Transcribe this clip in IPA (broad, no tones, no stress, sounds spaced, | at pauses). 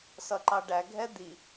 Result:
s ʌ ǃ ɑ ɖ æ ɡʱ ɛ d̪ i